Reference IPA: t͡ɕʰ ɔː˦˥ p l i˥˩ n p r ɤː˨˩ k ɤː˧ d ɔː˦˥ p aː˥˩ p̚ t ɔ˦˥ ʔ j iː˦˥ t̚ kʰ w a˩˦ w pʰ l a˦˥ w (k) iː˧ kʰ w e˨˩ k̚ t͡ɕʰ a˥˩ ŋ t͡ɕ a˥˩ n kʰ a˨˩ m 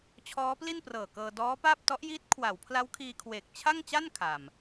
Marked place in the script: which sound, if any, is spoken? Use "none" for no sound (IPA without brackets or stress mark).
kʰ